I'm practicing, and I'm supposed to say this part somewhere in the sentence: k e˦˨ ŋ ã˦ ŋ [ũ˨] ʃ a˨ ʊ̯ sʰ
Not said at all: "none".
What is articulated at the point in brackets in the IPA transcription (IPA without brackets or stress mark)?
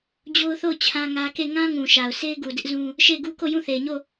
ũ˨